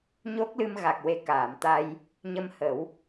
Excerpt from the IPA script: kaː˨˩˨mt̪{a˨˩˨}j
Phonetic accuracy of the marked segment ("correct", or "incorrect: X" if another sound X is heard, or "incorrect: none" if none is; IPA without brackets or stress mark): incorrect: a˧